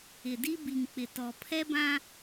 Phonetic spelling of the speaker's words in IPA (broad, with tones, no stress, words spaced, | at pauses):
ɪ˨di˦ bi˨ŋk͡pɪ˨tɔ˨ pʰɛ˦bã˦